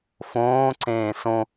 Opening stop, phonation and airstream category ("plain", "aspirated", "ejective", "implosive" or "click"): click